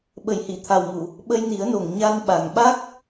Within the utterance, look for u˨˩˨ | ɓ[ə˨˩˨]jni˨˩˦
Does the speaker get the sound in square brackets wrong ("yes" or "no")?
yes